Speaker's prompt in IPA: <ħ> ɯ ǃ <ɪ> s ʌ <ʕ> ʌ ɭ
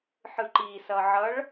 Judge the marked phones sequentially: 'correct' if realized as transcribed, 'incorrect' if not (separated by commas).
correct, incorrect, correct